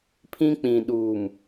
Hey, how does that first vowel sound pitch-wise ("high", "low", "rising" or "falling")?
high